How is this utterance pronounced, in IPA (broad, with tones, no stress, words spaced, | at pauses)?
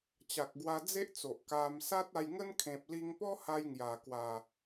t͡ɕa˨k̚ɡwa˧ d͡ze˦ʔt͡so˨ʔ ka˧m sa˦t̚a˧jŋə˦n kʰẽ˨p̚li˧ŋpɔ˦ha˧j ŋja˨˩kwa˨˩